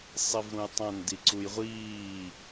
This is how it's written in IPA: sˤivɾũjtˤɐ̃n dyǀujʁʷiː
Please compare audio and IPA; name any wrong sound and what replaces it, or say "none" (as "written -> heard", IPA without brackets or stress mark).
y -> i